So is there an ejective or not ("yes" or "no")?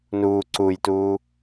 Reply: no